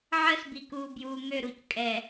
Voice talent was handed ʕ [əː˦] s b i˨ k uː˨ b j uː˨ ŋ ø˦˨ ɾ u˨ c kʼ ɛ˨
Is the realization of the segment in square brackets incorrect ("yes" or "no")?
no